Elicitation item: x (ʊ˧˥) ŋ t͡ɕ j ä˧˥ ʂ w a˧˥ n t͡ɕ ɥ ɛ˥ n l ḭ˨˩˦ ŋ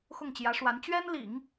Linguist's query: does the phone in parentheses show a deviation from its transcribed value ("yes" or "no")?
yes